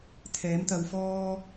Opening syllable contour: rising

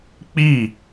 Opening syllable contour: falling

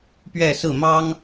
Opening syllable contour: falling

